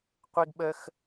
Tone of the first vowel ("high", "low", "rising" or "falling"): high